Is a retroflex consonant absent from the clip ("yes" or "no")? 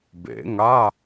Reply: yes